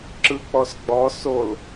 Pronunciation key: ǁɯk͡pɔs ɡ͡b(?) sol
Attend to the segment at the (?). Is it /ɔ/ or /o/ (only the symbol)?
ɔ